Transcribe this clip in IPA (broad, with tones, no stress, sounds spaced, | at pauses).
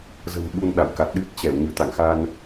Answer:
z ə̤˨˩ m ɓ u˧ n ɗ a̰˧˨ w k a˨˩ t̚ ɗ ɨ˦˥ t̚ t͡ɕ ɛ˧˩ w ɲ ɨ˧˩ t̪ a̰˧˨ ŋ x a˧ n